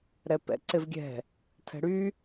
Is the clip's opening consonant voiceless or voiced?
voiced